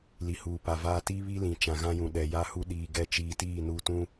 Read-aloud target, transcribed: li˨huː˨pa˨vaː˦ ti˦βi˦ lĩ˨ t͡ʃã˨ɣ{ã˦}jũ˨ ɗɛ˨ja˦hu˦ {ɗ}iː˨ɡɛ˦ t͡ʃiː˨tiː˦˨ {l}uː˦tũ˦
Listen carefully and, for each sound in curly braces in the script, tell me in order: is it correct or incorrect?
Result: correct, correct, incorrect: n

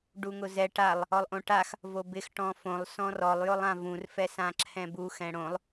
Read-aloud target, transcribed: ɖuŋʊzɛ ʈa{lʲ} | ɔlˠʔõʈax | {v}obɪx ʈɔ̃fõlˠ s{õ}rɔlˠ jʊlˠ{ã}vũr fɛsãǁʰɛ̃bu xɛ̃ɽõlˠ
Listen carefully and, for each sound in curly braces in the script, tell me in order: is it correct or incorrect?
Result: incorrect: lˠ, correct, incorrect: ɔ̃, correct

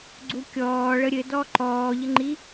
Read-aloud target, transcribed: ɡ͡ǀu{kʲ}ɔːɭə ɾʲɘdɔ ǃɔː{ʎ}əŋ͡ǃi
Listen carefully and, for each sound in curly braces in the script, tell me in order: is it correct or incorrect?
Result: correct, correct

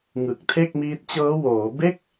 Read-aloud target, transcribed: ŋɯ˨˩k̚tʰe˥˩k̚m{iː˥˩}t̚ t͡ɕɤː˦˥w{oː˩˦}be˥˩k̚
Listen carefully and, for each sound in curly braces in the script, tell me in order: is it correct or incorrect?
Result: incorrect: iː˦˥, correct

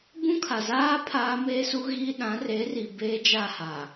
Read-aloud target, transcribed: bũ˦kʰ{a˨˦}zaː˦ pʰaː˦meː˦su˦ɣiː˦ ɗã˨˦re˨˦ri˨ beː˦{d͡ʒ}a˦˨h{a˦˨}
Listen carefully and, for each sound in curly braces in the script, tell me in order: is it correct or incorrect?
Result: incorrect: a˨, correct, incorrect: a˨

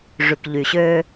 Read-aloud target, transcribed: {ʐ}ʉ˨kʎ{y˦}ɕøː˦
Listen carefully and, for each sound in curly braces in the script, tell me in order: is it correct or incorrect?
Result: correct, incorrect: y˨

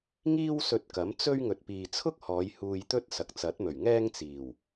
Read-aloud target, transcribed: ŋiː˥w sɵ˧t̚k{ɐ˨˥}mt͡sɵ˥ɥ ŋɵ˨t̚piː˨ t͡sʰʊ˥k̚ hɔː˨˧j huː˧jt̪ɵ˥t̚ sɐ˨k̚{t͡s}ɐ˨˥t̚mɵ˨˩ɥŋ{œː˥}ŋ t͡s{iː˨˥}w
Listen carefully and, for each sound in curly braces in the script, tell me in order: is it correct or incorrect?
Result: correct, correct, incorrect: ɛː˥, incorrect: iː˨˩

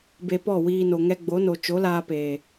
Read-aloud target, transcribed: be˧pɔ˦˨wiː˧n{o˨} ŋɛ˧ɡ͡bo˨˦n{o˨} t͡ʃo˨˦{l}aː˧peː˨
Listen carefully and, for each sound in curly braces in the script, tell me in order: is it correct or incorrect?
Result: correct, correct, correct

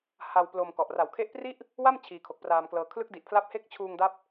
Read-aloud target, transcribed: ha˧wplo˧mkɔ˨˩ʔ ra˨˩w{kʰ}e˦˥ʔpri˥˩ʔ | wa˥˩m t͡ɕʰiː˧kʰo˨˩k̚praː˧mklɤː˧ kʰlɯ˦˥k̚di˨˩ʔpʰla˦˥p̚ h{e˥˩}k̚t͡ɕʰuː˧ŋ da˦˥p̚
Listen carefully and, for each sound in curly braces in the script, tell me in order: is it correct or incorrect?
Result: correct, correct

